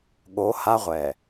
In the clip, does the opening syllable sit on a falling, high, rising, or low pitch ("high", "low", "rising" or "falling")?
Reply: rising